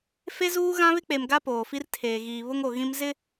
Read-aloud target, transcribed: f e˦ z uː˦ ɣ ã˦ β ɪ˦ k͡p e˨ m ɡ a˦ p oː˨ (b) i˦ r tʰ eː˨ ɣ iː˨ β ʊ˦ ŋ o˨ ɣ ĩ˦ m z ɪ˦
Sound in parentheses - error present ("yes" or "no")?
yes